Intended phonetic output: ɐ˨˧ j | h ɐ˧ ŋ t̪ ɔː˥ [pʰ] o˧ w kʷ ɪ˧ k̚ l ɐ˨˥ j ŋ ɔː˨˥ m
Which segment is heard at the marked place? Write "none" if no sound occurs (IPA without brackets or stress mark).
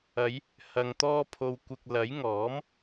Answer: pʰ